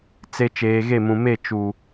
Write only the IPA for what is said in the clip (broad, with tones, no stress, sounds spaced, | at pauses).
t͡s e˨ t͡ʃ eː˨ ɣ e˦˨ m ũ˨ m e˦˨ t͡ʃ u˨